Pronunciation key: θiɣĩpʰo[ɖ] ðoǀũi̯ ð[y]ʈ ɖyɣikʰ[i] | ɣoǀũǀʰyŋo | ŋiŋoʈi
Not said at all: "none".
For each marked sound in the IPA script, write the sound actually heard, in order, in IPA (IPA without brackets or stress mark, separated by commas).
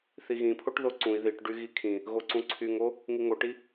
ʈ, i, ĩ